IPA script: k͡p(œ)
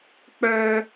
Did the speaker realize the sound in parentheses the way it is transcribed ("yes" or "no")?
yes